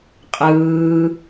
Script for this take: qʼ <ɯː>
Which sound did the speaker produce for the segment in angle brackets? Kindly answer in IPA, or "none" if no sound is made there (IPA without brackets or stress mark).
ɯː